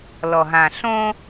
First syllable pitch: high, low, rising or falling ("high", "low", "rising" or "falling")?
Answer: low